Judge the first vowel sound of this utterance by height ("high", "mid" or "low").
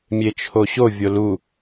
mid